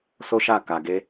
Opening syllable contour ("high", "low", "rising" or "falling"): high